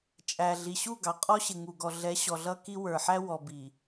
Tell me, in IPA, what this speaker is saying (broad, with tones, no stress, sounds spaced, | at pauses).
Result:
t͡ʃʼ æ˨ ɮ i˨ ɕ u˦˨ ɡ ɑ˨ qʼ ɔ˦ ɕ ɪ˨ ŋ u˨ ɡ ɔ˨ ɮ ɛ˨˦ ɕ ɔ˨ ɮ ʌ˦ k i˦ w ə˞˨ ħ æ˦ w ɔ˨ b i˨